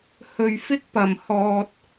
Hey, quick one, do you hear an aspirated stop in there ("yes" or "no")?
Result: no